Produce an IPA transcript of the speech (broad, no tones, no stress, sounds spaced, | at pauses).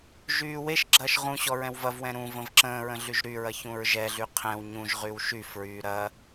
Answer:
ʒ yː w e ʃ ɡ͡ǁ ɐː ʃ ʁ ũ ɕ ɔ ɹ ɛ̃ w v ɐ v w ɛ̃ ɾ ũ v ə̃ v ǁ ə̃ː ɹ ə̃ ɮ y ʒ ɾ y ɹ ɐ ç ũ ɹ ʒ ɛ ɮ y qʰ ɛ̃ w ɲ ũ ʒ ʁ y w ʃ y f ɹ yː ɾ ɐ